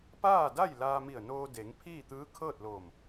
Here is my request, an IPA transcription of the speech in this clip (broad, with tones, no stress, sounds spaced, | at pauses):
p aː˥˨ d a˥˨ j l aː˧ m i˧˩ ə̯ n oː˧ d e˩˧ ŋ pʰ iː˥˨ t̪ ɯː˧˥ kʰ ɤː˥˨ t̚ l oː˧˩ m